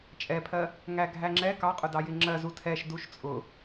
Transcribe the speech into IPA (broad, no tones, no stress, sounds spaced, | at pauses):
t͡ʃʼ ɛ pʰ ɜ | ŋ æ ɡʱ æ ŋ͡ǁ ɛ k ɑ qʼ ʊ d ɑ j ɪ ŋ͡ǁ ɜ z u tʰ ɛ ʃ d u ʃ t͡sʼ ʊ